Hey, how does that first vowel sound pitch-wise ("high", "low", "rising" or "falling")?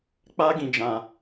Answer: high